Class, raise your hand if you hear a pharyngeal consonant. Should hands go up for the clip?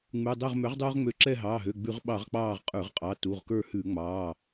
no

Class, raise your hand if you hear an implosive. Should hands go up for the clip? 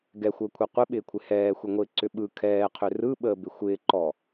yes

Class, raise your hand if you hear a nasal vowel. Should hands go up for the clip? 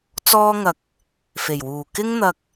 no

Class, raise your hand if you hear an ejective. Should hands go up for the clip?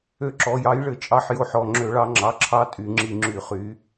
yes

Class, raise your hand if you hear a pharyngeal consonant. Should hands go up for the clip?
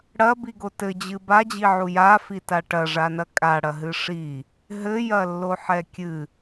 yes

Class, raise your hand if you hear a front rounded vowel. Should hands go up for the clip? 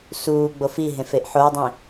no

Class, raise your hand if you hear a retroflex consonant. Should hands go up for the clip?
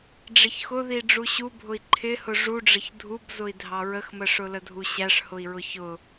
yes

